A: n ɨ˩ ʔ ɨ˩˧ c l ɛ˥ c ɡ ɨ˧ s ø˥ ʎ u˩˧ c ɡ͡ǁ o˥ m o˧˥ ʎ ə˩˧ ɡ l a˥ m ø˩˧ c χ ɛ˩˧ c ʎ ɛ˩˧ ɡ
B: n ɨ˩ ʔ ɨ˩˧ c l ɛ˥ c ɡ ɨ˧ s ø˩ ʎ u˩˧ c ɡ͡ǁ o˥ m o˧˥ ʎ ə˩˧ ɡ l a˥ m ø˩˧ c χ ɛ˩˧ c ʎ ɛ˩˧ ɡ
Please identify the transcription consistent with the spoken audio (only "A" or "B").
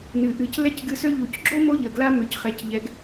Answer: A